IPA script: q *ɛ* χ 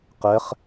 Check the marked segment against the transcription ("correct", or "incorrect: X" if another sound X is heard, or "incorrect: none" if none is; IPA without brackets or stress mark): correct